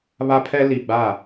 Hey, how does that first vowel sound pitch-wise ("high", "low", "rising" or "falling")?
high